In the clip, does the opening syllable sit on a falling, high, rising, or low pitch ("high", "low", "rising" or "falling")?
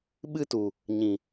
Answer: high